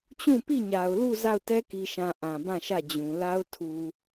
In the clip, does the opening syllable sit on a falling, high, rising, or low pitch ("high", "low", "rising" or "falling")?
falling